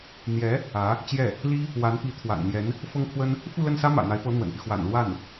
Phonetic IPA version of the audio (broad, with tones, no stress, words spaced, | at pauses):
n̪jɛ˧˥ | ä˧˥ | t͡ɕjɛ˥˩ | li˥ | wa˧˥n pi˧˥t̪ʰwa̰˨˩nn̪jɛ˧˥n | fɤ˥ŋkʰwə˥n | fu˥˧lə˥˩nsä˥ mä̰˨˩n̪a˧˥ɪ̯pɤ˧˥ n̪wə̰˨˩npy˦ xwa̰˨˩nlwa˥˩n